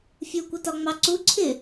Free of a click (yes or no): no